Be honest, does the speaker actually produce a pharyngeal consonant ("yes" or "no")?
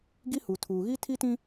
no